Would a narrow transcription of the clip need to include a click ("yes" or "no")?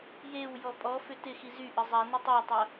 no